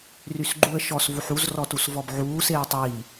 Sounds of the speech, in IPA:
rysɡ͡ǃuə̯ ʃɔs vuħuz rɔtusvɔbʕuː seːə̯tˤiː

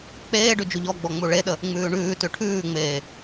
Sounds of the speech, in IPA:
k͡peːɖʉ d͡ʒuʎɔɡ͡bɔ ŋ͡muɭeɗə | ŋ͡mʉːɳʉːtʉ ʈʰʉːŋ͡meː

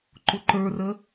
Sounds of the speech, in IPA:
ǃʊǃə˞rə

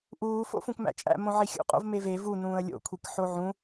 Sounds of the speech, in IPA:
ʔuː fo̰fũkmæ̰t͡ʃʼæ̰ mõʕixʲṵ qʼo̰vmeve vu nũːə̯lʲo̰ kʷʰikħoʕũ

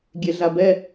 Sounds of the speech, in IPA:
ɡʲeɮabɛ

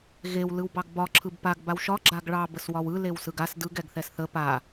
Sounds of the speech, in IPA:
ɣew lɯwbɑɡbɒ ǁʰɯbpaɡ bawʃɒ ɡ͡ǁaɡɭɑ bəswɒwɯ lewsɯɡas dɯɡ ɛɡθɛsθə pa

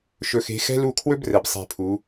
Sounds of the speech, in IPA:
ʃɵ˨xe̤˨˦xɛ̤˦lu˦˨ kʰwɵ˦brɛ˨b sˤe̤˦˨pʰu˨˦

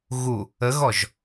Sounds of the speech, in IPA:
ɣu | əɣɔʒ

